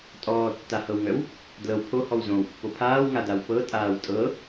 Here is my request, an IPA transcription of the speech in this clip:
tʼɔːtːahɤwŋœw | dlɤw pʰohɔw zõwpːo pʰaːwŋadaw pɤtʼaːw tʼɤ

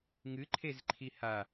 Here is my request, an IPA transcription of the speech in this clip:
ŋɨǃʰezǃʰi ha

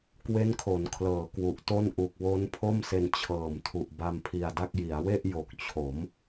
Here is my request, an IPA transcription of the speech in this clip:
kwe˦˥nkʰo˩˦nkʰlɤː˩˦ kwu˨˩ʔto˥˩n ʔu˨˩k̚wo˦˥npʰo˥˩mse˧n t͡ɕʰɤː˨˩mtʰu˨˩ʔ ba˧mpʰi˧a̯da˥˩k̚ ji˩˦a̯we˥˩ʔ jo˨˩k̚t͡ɕʰo˩˦m

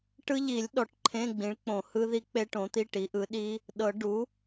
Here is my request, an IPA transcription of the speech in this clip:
ʈɯ˦˥ʎi˨˩˦lʲ ɗɔ˨˩˦ʈǃʰẽ˧˥˧ɡ͡bĩ˩˥ɭk͡põ˨˩˦ hɯ˦˥ði˦˥ k͡pe˦˥ʈõ˩˥t̪i˧˥˧ ʈi˩˥ʔɯ˩˥ɗi˦˥ | ɗɤ˨˩˦ ɖu˩˥

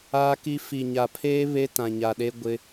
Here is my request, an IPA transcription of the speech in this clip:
aː˦ki˦ fi˨ɲa˨pʰeː˦ βe˦tã˨ɲa˨ɗe˦ ɡʷɪ˦

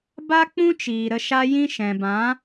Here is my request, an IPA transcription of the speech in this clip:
ba˦k͡pũ˦t͡ʃiː˨ ɾə˧ʃa˦jĩ˦ ʃɛ̃˨bã˨˦

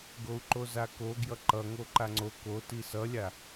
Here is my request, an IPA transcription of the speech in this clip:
ɡou̯ǃozako ɡjʌǃʌŋo ǃaŋ͡ǀo ko tisʌlʲa

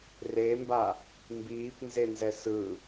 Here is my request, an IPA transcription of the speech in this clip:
remba | mbiːpnzenzɛ sɯ

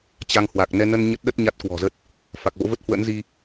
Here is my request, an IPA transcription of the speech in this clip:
t͡ɕa˧ŋhwa˨˩k̚ nɛ˧nə˧n ɲə˦˥t̚ɗə˦˥t̚ ɲa˦˥t̚kwɔ̤˨˩zə˦˥t̚ | fa˨˩k̚vo̰˧˥və˦˥t̚ hwə̰˧˥nzi˧

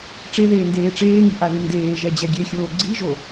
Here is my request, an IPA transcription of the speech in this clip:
ʈ͡ʂeðeː ndeːʈ͡ʂeːŋi ʔaðɨndeːʒɛ d͡ʑɛɡʲexʲoː ɡ͡ǀiʒo

